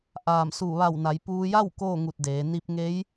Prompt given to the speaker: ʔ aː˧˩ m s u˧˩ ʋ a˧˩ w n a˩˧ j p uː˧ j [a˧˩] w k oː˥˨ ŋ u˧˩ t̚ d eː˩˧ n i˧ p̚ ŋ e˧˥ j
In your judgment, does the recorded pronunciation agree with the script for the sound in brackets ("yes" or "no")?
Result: no